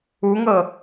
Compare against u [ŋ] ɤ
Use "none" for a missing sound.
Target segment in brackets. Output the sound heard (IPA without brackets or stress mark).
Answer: ŋ